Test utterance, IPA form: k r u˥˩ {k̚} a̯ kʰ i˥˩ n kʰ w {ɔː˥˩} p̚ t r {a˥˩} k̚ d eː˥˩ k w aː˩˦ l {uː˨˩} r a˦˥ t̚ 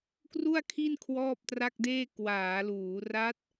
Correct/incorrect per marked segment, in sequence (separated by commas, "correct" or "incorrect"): incorrect, correct, correct, incorrect